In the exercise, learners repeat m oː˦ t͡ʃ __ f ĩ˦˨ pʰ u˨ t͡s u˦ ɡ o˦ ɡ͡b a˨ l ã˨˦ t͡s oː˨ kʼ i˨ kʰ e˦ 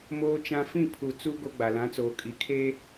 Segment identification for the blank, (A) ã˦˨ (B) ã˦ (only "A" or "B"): B